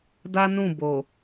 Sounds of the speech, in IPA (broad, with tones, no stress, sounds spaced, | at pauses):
d a˦ n ũ˦˨ b o˨